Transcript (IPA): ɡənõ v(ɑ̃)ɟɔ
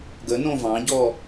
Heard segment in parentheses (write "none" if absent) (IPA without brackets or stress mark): ɑ̃